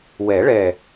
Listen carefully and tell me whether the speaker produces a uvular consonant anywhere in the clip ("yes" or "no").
no